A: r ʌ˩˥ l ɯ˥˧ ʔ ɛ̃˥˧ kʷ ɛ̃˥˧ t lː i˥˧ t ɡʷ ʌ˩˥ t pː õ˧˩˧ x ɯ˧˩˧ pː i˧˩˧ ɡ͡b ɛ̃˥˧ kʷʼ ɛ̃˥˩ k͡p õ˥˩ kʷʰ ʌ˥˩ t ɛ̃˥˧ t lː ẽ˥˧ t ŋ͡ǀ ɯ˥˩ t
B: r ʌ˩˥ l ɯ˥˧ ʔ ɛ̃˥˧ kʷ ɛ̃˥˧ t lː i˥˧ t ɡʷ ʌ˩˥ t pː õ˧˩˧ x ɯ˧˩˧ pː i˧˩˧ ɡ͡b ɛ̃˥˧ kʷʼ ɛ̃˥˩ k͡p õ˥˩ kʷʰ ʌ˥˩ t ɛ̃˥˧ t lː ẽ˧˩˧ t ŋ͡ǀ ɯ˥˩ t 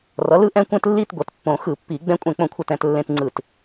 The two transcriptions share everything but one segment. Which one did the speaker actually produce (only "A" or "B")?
A